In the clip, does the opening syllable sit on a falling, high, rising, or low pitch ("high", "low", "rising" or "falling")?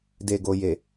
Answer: low